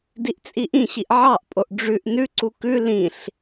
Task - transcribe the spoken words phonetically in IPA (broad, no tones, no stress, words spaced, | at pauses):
diʔt͡sʼiʔĩɕiʔ ʕɑʔpʼoʔ ɖ͡ʐʉʔ nʉǀu kʉ lĩɬ